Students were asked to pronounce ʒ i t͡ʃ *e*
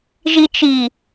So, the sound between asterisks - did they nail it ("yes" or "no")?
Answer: no